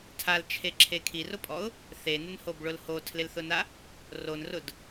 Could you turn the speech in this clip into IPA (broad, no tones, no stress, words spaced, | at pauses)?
tʰalt͡ʃʰeǁʰe kʰirʊpʼɔʊ̯ | θenɪnhobɭʊl hotʰlɪlθʊna | ronrʊd